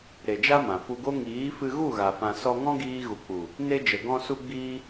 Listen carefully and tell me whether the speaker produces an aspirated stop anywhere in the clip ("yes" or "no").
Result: no